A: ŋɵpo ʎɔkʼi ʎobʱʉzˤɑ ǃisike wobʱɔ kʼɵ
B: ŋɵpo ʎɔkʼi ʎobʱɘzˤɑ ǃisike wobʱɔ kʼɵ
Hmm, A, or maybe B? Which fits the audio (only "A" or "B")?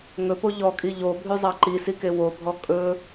A